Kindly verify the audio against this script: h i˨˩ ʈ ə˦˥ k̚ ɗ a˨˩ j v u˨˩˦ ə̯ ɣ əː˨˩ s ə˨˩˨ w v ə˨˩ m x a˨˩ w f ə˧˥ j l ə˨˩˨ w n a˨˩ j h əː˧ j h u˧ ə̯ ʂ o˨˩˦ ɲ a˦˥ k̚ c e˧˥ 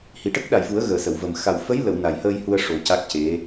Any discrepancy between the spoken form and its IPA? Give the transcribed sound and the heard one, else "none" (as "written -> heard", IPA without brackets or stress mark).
ɲ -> c